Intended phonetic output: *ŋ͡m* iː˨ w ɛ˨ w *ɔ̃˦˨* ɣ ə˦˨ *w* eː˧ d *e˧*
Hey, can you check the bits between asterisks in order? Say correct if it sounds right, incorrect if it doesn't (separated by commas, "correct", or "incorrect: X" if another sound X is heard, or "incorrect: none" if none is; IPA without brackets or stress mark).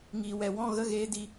incorrect: ŋ, correct, incorrect: ɣ, incorrect: i˧